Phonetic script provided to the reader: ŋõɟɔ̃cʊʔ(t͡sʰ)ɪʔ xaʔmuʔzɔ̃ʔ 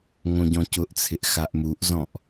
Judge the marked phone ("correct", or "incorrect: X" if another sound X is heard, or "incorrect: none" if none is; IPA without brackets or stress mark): correct